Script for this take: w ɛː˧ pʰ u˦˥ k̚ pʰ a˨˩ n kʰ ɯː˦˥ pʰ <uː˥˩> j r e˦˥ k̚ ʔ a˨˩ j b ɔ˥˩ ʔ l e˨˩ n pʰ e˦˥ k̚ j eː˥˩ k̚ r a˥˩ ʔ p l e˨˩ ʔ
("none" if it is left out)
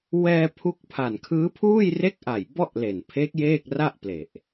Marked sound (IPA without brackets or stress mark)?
uː˥˩